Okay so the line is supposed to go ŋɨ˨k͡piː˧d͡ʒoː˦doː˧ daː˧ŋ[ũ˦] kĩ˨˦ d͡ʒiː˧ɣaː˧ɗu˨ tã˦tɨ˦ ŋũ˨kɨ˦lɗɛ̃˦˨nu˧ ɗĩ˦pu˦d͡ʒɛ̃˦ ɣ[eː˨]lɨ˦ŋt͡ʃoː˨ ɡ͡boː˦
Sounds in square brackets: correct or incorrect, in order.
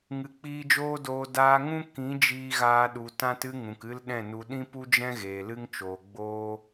correct, correct

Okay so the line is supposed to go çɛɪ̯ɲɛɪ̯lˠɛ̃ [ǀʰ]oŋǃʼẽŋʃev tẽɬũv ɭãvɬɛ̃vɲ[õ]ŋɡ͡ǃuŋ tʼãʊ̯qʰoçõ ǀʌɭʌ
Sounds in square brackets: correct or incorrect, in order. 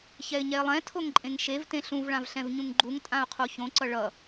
incorrect, incorrect

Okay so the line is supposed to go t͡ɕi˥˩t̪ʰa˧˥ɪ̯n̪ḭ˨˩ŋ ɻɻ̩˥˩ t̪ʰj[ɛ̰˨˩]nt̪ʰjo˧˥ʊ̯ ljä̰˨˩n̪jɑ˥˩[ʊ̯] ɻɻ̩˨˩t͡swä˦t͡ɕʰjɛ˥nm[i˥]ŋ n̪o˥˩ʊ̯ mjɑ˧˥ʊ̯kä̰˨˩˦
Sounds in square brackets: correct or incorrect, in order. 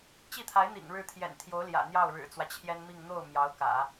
correct, correct, incorrect

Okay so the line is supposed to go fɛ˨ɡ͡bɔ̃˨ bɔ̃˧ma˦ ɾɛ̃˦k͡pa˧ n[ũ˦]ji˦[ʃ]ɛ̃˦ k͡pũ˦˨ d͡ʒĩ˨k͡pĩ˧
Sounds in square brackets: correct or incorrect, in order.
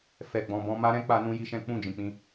correct, correct

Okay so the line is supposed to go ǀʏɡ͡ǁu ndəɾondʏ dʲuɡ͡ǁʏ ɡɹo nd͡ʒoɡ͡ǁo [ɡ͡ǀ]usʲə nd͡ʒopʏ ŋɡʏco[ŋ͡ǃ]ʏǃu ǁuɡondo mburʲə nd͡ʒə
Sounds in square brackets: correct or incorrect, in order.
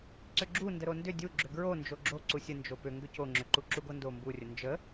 incorrect, incorrect

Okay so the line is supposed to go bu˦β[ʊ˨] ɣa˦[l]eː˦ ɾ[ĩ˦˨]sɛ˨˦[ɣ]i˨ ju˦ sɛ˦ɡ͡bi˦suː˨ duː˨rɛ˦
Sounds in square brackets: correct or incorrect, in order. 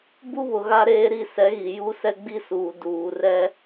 correct, incorrect, incorrect, correct

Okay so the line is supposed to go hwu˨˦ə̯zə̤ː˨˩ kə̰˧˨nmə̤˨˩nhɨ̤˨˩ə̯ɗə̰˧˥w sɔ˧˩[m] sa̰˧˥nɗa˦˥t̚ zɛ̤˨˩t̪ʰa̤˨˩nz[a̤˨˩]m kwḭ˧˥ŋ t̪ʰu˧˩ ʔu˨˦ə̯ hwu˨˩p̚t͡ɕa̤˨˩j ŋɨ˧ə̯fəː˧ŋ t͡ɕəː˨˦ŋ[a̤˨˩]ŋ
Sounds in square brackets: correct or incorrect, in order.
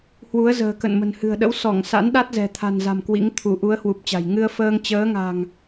incorrect, correct, correct

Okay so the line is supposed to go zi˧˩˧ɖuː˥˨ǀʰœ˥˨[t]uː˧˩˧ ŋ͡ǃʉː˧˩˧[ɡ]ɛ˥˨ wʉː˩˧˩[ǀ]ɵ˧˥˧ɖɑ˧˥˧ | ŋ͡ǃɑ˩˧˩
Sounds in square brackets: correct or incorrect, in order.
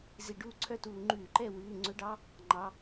correct, incorrect, incorrect

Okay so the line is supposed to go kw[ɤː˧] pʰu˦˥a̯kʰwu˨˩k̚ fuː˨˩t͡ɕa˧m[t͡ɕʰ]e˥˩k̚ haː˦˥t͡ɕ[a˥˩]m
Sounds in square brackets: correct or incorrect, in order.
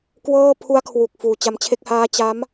incorrect, correct, incorrect

